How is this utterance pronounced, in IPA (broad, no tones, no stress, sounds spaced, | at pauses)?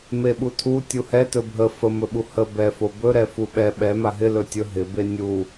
m e ɓ u tʰ u tʲ u h ɛ t ɵ bʱ ə f ə m ɵ ɓ u h ə b ɛ f o b ɵ ɾ ɛ f u ɓ ɛ ɓ ɛ m a ɦ ɪ l ɵ tʲ ɵ ɦ ɪ b e nʲ u